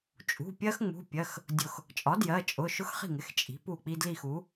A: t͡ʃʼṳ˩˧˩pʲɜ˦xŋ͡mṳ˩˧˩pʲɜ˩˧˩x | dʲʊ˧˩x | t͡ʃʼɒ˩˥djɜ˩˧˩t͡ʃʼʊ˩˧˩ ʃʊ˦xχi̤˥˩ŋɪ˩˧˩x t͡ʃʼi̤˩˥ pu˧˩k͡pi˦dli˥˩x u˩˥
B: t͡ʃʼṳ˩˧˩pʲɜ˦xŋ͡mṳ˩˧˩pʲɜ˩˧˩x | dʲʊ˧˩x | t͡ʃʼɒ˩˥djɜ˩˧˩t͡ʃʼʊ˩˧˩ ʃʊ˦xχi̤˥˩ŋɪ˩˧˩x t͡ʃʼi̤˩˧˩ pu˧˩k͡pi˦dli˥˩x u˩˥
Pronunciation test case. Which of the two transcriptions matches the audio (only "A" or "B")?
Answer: A